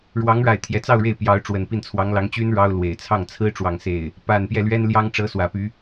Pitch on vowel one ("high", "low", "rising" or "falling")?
rising